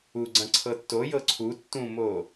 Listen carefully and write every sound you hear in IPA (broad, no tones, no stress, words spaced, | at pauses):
uɡ͡ǀɐ̃ ǀʰɤtːojɤ ǀʰu tːũmo